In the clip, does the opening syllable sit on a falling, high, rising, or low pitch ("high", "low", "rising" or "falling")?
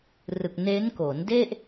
low